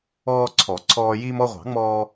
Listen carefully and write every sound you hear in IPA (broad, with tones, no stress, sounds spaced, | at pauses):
ɔː˧ ǀʰ ɔ˨˩˦ ǀʰ ɔː˧ j iː˧ m ɔ˧ ʁʷ ɑ̤˨˩˦ ŋ͡m ɔː˧